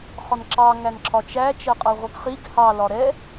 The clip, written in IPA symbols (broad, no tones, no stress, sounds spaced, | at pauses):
χ ɒ n ǁ ɑ ŋ æ n ǁʰ ɒ t͡ʃ æ t͡ʃ ɜ qʼ ɜ ʁʷ ʌ ɡ χ i ɡ h ɑ l ɒ ɾ ɛ